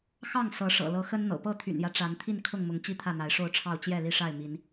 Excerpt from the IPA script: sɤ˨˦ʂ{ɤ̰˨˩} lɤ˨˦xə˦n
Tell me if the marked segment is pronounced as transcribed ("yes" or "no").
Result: yes